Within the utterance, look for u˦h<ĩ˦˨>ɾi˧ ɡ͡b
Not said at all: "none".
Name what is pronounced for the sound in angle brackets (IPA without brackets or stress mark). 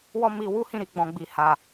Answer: ĩ˦˨